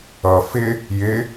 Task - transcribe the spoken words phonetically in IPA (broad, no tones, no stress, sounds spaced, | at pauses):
ʌ f ɪ | j ɪ